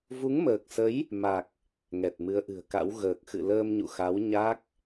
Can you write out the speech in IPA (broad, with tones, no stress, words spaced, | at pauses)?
vu˨˦ŋməː˨˩k̚sə˨˦j | ma˨˩k̚ | ŋɛ˨˩t̚mɨ˨˦ə̯ʔɨ̤˨˩ə̯ka̰˧˥w ɣəː˨˩k̚xɨ̰˧˨ ləː˧mɲṵ˧˨xa˨˦w ɲa˦˥k̚